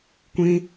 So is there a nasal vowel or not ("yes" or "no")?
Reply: yes